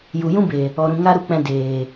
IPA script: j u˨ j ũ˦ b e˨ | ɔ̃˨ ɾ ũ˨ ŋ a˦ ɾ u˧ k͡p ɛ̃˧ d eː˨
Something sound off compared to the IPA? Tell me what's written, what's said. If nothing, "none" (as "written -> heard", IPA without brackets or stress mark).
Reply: ɔ̃˨ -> ɔ˨